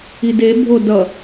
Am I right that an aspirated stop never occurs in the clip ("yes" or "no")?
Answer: yes